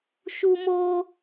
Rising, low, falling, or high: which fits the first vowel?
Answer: high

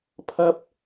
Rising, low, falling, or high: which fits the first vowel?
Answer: high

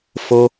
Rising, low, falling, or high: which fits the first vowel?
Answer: high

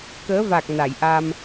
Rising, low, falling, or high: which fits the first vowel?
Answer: rising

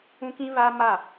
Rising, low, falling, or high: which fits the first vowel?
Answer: high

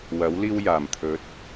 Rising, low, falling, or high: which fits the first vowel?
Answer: rising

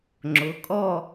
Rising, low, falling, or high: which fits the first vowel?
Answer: rising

